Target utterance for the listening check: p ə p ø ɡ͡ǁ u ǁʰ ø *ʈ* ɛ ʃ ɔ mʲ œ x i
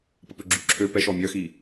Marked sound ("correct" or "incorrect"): incorrect